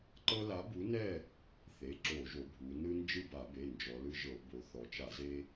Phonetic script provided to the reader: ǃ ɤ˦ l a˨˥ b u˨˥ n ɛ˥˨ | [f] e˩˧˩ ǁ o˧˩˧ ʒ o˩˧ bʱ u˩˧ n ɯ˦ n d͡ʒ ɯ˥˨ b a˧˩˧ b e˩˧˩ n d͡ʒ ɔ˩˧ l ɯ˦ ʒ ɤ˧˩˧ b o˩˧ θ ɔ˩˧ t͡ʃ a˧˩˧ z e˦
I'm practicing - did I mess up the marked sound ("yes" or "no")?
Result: yes